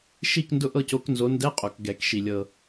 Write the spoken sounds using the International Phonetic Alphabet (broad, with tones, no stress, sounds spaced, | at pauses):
ʃ i˦˨ k n d ʊ˦˨ ʔ ɤ˦˨ c o˨˦ k n z o˨˦ n d ɛ˧˥˧ qʼ o˨˩ k ɡ ɛ˨˩˦ k ʃ i˨˩ lʲ ɤ˨˩